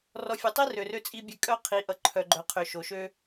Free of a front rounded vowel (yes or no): no